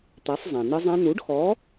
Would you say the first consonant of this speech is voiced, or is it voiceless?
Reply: voiceless